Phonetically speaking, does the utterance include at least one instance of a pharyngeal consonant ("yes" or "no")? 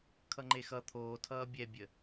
no